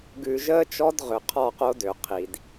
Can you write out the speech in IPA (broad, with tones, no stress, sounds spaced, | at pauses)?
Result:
ɡ ʉ˨ ʒ əː˦ t͡ʃ ɔ˦ d ʁ ʏ˨ qʰ ɔ˦˨ q o˦ d ø˨ qʰ i˨ d